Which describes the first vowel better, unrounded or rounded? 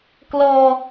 rounded